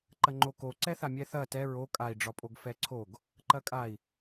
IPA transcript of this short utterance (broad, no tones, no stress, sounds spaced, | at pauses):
ǃ ɐ ŋ͡ǃ o k o ǀ ɛ θ a mʲ ɛ θ ɐ t ɛ ɹ o kʼ a i̯ ɖ͡ʐ ɒ pʼ o ɡ f ɛ ǀʰ o ɡ | ǃ ɐ kʼ a i̯